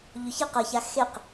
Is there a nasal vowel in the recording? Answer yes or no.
no